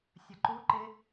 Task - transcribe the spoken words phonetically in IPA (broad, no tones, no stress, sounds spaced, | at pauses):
sʲ ə ǃ u ǃ ɪ